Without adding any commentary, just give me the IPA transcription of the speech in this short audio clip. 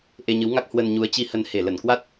ʔ e˧ ɲ ɨ˨˦ w ŋ a˦˥ k̚ h w ə˧ n ɲ u˨˦ ə̯ t͡ɕ i˧ h ə˧ n h e˧˩ l ə˧˩ n k w a˦˥ t̚

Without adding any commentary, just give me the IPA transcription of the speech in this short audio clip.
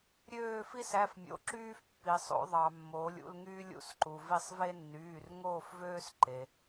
ɾʲ øː˦˨ f i˦ s æ˩˧˩ f mʲ o̰˩˧˩ ǁ yː˦ f pː i˩ sˤ o̰˩˧ ðˤ ɑ˩ mː oː˩˧ lʲ ṵ˦˨ l ŋ yː˦ lʲ ṵ˩˧˩ s ǃ u˩ v i˦˨ sˤ v e˦ nː yː˩˧˩ r ŋ oː˦˨ f v øː˦ s ǃ e˩

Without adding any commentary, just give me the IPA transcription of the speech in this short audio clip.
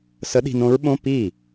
s ə˧˥ ɗ i̤˧ n õ˧˥ ɹ ɓ õ˧˥˧ p i˥˩

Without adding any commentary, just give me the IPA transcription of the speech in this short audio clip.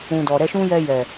ũ˨ d ɔ˨ ɾ ɛ˧ ʃ ũ˦ j ɛ˧ j ɛ˨

